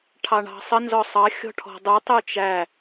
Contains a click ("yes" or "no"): no